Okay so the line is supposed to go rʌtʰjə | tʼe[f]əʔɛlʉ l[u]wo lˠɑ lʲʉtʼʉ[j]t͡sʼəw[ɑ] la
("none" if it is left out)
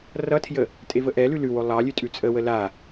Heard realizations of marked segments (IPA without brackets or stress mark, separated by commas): v, ʉ, none, ə